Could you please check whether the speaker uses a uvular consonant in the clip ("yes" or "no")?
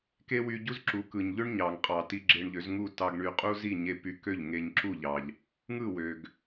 yes